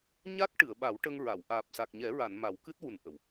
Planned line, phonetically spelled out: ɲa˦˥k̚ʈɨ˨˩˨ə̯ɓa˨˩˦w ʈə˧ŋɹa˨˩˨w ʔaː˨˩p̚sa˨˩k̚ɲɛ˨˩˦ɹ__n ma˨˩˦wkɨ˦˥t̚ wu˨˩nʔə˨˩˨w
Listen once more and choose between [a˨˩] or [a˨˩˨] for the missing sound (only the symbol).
a˨˩˨